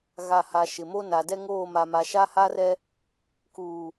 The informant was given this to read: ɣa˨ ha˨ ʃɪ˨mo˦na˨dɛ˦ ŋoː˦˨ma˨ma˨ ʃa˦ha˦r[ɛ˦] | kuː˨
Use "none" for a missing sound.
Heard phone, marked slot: ɛ˦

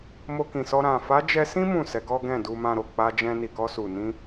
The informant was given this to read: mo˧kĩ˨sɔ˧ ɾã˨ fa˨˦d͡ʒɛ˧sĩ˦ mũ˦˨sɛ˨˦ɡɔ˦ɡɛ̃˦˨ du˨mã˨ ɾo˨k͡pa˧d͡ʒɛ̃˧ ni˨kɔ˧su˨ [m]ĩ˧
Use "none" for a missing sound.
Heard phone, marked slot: n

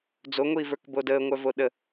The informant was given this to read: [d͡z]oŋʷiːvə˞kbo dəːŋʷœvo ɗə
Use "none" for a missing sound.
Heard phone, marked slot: d͡z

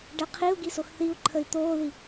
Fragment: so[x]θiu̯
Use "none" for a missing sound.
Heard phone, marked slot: x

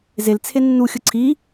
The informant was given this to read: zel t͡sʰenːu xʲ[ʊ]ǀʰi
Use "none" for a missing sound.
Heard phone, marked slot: ʊ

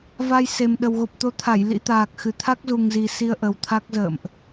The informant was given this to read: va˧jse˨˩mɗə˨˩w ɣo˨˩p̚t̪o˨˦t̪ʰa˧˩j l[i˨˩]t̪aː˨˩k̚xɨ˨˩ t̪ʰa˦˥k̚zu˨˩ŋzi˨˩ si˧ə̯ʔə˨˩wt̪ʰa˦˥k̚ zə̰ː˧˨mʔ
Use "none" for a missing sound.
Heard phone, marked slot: ḭ˧˥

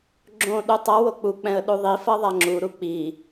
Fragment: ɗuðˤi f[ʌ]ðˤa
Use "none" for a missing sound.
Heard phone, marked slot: ʌ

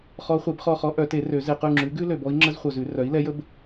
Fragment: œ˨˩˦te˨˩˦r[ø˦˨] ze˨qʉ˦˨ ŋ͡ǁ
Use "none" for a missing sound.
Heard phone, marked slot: ø˨˩˦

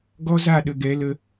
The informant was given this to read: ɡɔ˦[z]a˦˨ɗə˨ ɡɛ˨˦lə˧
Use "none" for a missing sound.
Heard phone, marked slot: z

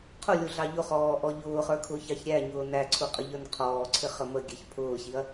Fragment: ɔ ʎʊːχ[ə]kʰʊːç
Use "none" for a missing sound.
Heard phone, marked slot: ə˞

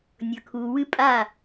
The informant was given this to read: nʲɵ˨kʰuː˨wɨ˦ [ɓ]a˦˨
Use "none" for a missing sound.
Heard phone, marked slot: pʼ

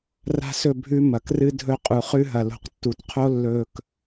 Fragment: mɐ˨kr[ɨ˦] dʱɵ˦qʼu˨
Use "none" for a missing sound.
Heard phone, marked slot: ɨ˦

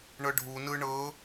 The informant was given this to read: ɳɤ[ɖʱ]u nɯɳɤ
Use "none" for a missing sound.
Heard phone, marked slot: ɖʱ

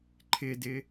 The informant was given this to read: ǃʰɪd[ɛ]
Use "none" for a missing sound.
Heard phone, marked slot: ɪ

